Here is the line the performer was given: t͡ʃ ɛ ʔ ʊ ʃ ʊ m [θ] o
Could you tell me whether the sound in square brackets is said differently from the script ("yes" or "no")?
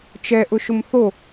no